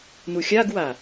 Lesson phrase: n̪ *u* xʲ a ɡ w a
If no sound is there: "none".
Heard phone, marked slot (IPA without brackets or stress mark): u